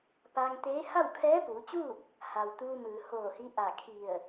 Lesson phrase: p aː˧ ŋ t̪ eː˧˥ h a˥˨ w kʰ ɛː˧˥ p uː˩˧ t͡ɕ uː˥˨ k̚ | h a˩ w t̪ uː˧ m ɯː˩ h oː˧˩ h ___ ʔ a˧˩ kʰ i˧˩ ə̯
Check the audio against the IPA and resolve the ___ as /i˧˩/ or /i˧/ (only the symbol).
i˧